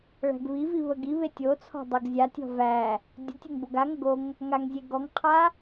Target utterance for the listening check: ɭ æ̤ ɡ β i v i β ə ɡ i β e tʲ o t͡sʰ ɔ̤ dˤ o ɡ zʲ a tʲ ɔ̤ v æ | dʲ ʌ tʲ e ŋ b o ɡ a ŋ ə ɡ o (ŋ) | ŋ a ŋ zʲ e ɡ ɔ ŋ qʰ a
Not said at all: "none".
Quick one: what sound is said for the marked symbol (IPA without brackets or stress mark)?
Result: ŋ